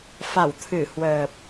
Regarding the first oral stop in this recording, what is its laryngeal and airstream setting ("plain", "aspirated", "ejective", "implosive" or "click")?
aspirated